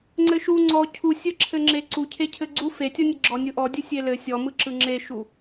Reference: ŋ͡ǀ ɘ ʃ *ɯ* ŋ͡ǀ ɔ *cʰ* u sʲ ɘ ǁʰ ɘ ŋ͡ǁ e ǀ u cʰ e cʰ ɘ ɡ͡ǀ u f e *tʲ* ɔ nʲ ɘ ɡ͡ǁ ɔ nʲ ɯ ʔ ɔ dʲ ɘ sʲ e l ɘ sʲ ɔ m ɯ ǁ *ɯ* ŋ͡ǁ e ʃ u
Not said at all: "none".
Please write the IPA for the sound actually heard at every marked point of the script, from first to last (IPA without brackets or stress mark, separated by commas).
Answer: u, cʰ, tʲ, ɯ